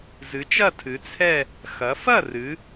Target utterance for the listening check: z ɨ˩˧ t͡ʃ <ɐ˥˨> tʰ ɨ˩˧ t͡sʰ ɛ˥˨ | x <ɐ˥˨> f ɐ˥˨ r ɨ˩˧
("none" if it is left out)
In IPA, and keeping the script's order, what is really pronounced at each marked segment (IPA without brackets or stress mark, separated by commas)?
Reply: ɐ˥˨, ɐ˩˧